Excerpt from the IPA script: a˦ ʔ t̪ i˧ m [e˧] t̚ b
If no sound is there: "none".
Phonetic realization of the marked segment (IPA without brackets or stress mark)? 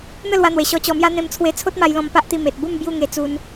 e˨